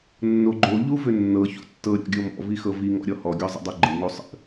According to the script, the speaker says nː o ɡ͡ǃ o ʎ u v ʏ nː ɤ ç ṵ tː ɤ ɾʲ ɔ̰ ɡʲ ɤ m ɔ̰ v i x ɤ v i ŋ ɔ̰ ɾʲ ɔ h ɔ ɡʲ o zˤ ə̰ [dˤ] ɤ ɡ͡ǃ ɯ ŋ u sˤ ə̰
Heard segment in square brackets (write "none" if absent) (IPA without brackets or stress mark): dˤ